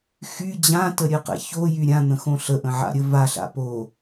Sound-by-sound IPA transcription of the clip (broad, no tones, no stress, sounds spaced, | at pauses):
x y d͡ʑ ã t ə ɾʲ ɘ q ɛ̰ ç o j y ɾʲ ã n̪ ə̃ x õ ɬ ə ʔ ə̃ ʕ a̰ ɾʲ ə v a ɬ a̰ p o